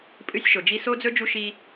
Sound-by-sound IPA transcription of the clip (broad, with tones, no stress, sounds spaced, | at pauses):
pʼ ɨ˦ sʲ ʃ o˨ d͡ʒ i˦ s o˦ d͡z ɵ˦ d͡ʒ u˦ ʃ i˦